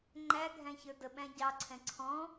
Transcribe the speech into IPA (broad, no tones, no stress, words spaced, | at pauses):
ŋ͡ǃæɡʱæ̃çə˞ dəɓæ̃ ɟɑǀʰɛ̃ ǀʰɔ̃